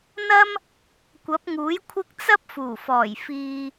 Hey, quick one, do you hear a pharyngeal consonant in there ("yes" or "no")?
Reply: no